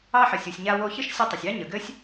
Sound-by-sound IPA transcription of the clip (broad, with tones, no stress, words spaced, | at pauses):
ɑ˧ħə˩sʲ u˩sʲɲa˧ wo˧çɘ˥ʃsʲu˧ tˤʊ˩sʲɑ˥ ɲə˩ ɡɘ˥sʲ